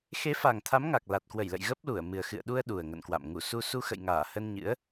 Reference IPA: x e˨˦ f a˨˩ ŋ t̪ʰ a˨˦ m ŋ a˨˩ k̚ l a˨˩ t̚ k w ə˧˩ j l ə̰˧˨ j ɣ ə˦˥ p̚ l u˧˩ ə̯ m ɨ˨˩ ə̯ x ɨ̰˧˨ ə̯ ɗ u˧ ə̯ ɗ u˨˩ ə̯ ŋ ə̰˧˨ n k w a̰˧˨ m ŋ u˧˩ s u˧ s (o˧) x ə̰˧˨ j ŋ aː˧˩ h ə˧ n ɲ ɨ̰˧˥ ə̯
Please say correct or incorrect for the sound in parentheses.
incorrect